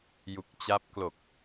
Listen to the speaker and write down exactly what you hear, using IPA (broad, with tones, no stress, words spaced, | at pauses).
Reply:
ju˨˩k̚t͡ɕa˦˥p̚ klo˨˩k̚